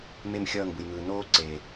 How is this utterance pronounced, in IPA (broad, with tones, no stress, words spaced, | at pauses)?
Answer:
me˦˨mxʲʌː˦˨ŋ bɯ˨jŋɯː˨ noː˦ǀe˨